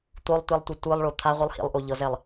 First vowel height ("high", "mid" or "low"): mid